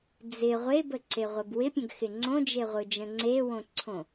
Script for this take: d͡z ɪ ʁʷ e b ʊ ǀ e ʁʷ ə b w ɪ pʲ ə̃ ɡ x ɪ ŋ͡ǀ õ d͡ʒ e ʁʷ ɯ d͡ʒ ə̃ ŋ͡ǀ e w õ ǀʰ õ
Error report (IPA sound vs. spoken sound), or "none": ʊ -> ə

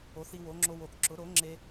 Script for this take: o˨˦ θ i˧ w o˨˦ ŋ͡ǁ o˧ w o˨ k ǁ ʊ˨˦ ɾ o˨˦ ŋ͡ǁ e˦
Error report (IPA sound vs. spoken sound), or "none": none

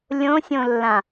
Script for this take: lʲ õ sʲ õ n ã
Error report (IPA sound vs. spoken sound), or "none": n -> lː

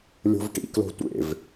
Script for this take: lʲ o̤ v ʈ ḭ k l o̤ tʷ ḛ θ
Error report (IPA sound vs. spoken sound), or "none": θ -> v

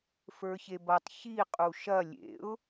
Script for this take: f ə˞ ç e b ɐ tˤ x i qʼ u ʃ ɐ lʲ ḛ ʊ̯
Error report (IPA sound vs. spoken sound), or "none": x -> ç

